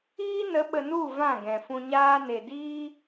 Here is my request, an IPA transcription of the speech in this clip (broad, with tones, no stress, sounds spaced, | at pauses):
iː˦ n ə˨˦ ɓ ə˧ n u˦˨ v ã˦˨ ɡ ɛ̃˨ f ũ˧ ɲ aː˦ n e˨ d iː˦